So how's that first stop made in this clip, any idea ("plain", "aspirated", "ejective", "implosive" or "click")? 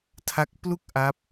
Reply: aspirated